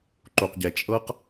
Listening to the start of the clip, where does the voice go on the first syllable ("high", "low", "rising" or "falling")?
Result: low